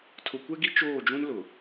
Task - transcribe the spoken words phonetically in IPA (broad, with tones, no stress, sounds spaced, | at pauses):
tʰ ʊ˨ kʷ ɛ˦ ɡ i˦ t͡ʃ oː˦˨ d͡ʒ ũ˦ n l ʊ˨